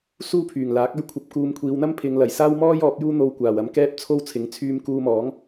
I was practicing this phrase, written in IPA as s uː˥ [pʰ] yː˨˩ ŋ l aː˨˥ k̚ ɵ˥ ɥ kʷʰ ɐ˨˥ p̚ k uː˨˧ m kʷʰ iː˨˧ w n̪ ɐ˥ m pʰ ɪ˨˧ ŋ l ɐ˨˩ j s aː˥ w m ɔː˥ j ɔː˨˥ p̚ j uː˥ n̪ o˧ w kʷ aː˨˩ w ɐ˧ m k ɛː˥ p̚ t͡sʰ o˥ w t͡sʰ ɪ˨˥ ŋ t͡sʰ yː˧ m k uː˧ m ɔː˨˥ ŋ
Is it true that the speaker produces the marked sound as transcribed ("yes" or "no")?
yes